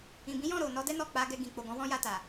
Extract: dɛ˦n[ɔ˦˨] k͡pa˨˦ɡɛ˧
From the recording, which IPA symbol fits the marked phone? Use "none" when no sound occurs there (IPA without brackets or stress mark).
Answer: ɔ˦˨